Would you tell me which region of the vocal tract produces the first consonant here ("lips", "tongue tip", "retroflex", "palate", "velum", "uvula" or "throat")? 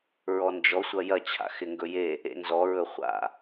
tongue tip